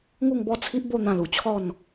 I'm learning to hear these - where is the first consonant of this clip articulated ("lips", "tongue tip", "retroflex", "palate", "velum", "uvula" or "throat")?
velum